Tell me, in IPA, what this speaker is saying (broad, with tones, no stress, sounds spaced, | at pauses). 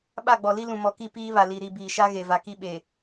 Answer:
ɓ a˦˨ ɡ͡b ɔ˨ l i˦ l ũ˨ m ɔ˨ k i˦˨ p iː˦ β a˨ l i˨ ɾ i˦˨ b iː˨ ʃ a˦ ɣ e˨ v a˨ k i˦ ɓ e˨